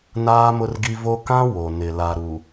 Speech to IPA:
n aː˦ m ʊ˦ r ɡ i˦ v o˦ k ã˦ w o˨ n ɪ˨ l a˨ ɾ u˨

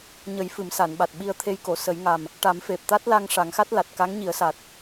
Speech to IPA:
ɲ ə˨˩˦ j f ɨ˨˩˦ m s a˨˩˨ n ɓ a˨˩ t̚ ɓ i˧ ə̯ t̪ʰ e˧ j k o˨˩˨ s ə˨˩˦ j ŋ a˨˩ m | ʈ a˨˩˦ m f e˨˩ p̚ t̪ a˦˥ t̚ l a˧ ŋ ʂ a˨˩˦ ŋ x a˦˥ t̚ l a˨˩ t̚ k a˧˥ ŋ ɲ i˨˩˦ ə̯ s a˨˩ t̚

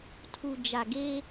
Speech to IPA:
tʰ u˨ d͡ʒ a˨ ɡ e˦

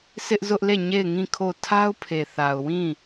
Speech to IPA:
sʰ ɪ˦ ʔ z ʊ˦ ʔ l e˦˨ ɲ e˦˨ ɪ̯ ŋ ĩ˦˨ kʰ o˦˨ tʰ a˦ ʊ̯ pʰ e˨ θ a˨ ʊ̯ w ĩ˦˨

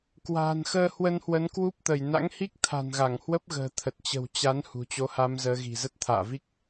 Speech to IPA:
k w a̤ː˨˩ n x əː˧ h w ə˧ n h w ə˨˦ n k w u˦˥ p̚ t̪ ə˧˩ j n a̰˧˥ ŋ h i˦˥ k̚ t̪ʰ a̤˨˩ n ɣ a˧˩ ŋ h w ə˦˥ p̚ ɣ ə̤ː˨˩ t̪ʰ ə˨˩ t̚ t͡ɕ ə̤˨˩ w t͡ɕ a˨˦ n h ṳ˨˩ t͡ɕ o˧ h a˧ m z əː˧ ɣ i̤˨˩ z ə˦˥ t̚ t̪ʰ a̰ː˧˨ v i˦˥ k̚

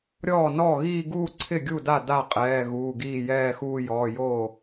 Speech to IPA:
ɾʲ ɔː˥˩ n ɔː˥˩ ɣ iː˥˧ ɡ uː˥˧ ǀʰ ɪ˥˩ ɡʲ u˥˩ d a˥˩ d a˥˩ qʼ ɛː˩˧˩ ɣ uː˩˧˩ ɡ iː˥˩ j ɛː˥˧ x uː˥˧ j ɔː˩˧˩ j oː˥˩

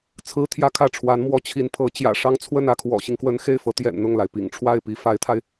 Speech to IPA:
t͡sʰ ɹ̩˥ t̪ʰ j ä˥ kʰ ä˥˩ ʈ͡ʂʰ w a˧˥ n m w ɔ˧˥ t͡ɕʰ i˧˥ n pʰ ɤ˧˥ t͡ɕ j ä̰˨˩ ʂ ɑ˥ ŋ t͡sʰ w ə˥˧ n ä˥˩ kʰ w ɔ̰˨˩ ɕ i˦ ŋ k w ə˧˥ n x e˥˩ ɪ̯ f ɤ˧˥ t̪ j ɛ̰˨˩ n n̪ ʊ˥˩ ŋ l a˩ ɪ̯ p ḭ˨˩ ŋ ʈ͡ʂʰ w a˥˩ ɪ̯ p i˧˥ f a˧˥ ɪ̯ t̪ʰ a˧ ɪ̯

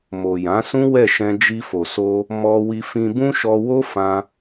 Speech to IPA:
m o˨ j ã˨˦ s ũ˦ w ɛ˦˨ ʃ ɛ̃˧ d͡ʒ i˧ f o˨ s o˧ | m ɔ˧ w i˧ f ĩ˧ b ũ˦ ʃ ɔ˧ w o˦ f ã˧

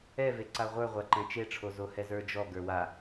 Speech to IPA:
ɛ v e ǀ a ʁʷ ə˞ ʁʷ a ǃ ɛ̃ t͡ʃ e ʈ͡ʂʰ o z o h ɛ z ə˞ d͡ʒ ɔ ɡ ə˞ w a

